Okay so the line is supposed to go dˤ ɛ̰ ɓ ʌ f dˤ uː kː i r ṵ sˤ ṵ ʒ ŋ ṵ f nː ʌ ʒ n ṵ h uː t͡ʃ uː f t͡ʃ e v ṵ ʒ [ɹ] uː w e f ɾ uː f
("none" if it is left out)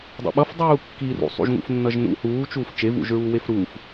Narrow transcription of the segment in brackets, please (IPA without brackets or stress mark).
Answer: ɹ